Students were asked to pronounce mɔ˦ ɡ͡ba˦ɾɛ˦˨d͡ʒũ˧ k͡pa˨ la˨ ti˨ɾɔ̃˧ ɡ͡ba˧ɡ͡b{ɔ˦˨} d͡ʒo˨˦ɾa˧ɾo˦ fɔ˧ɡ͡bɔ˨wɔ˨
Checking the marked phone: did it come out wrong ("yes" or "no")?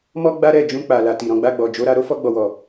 yes